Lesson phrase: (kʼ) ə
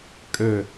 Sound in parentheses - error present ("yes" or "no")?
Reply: no